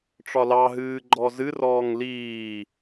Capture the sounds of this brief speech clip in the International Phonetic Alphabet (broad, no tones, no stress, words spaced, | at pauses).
ʈ͡ʂɒlɑɦɨː ɡ͡ǃɔzɨrɔːŋ liː